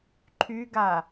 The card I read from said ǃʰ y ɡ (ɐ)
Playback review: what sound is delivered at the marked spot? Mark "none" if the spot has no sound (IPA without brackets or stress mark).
a